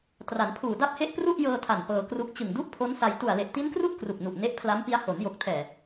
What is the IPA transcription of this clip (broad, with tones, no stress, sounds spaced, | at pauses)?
t r a˩˦ n pʰ uː˨˩ d a˥˩ p̚ h e˥˩ ʔ p r u˥˩ ʔ j ɤː˧ tʰ a˨˩ n p ɤː˧ k r u˦˥ k̚ t͡ɕ ɯ˨˩ ŋ d u˥˩ ʔ pʰ o˦˥ n s a˧ j t u˨˩ a̯ l e˨˩ ʔ t i˦˥ n k r u˥˩ ʔ k r u˨˩ k̚ n u˨˩ ʔ n e˦˥ ʔ pʰ l a˦˥ m p i˦˥ a̯ h o˩˦ n j o˨˩ k̚ tʰ ɛː˨˩